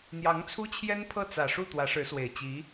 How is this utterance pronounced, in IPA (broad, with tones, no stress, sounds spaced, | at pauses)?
n̪ j ɑ˧˥ ŋ t͡sʰ u˥ t͡ɕʰ j ɛ˥ n pʰ ɤ˥˩ t͡s ä˨˩ ʂ u˥˩ t̪ w ä˧˥ ʂ ɻ̩˧˥ s w e˨˩ ɪ̯ t͡ɕ i˧˥